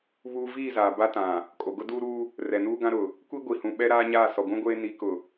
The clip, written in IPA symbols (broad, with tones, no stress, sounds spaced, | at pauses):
β uː˦ v iː˦˨ z aː˨ b a˦ t ã˨ | kʼ o˨ ɡ ʊ˦ d uː˦ ɾ uː˦ | r ɛ˨ n uː˦ ɡ ã˦ ɾ ʊ˨ | kʷ i˦ ɡʷ i˨ h ũ˨ ɓ ɛ˦ ɾ aː˦ ɲ aː˦˨ s ɔ˨ ɡʷ ũ˦ ɡʷ eː˦ n i˨˦ k ʊ˨